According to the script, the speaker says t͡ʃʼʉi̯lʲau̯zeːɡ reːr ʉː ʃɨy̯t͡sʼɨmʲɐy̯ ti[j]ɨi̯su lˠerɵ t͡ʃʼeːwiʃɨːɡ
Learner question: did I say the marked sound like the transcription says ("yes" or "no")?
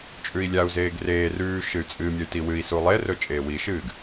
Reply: no